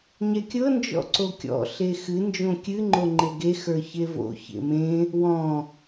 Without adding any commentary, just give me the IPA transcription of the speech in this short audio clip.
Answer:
ɲ ɛ kʲ ɤ n d͡ʒ ɔ̰ ǀ o kʲ ɔ̰ ɬ e x ɨ n d͡ʒ õ kʲ ɨ ŋ͡ǃ o ŋ͡ǃ e ɡ e x ə˞ ç e v o̰ ç ḛ m ẽ | w ɔ̃

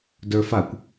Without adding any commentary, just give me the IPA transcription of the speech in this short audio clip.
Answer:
d ə˞ f a kʷ

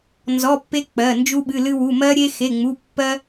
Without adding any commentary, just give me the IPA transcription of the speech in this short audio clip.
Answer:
n z ɔ˩˧˩ pː e˧ k͡p ɜ˩˧˩ n d͡ʒ u˧ ɓ ɨ˩˧˩ l ɨ˧ w u˩˧˩ m ɜ˧ ɾʲ e˧ x e˩˧˩ ŋ͡m u˩˧˩ pː ɜ˧

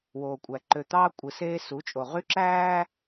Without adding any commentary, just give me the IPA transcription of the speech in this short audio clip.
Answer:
w oː˨ kʷʼ æ˨ ǃ ø˨ t̪ ɑː˦ kʷʼ ɯ˨ s eː˦ s u˨˦ t͡ʃʼ o˨ ʁ y˦ ǁ æː˦

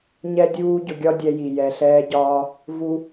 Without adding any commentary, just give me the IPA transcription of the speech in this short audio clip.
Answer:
ɲ ɛ˥ dʲ uː˥ ɟ ʊ˧ ɡʲ ɒ˥ dʲ ɛ˧ j i˩ j ɛ˩ ɬ ɛː˧ ɟ ɒː˧ | v u˥

